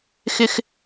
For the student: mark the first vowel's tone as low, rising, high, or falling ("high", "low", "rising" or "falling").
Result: low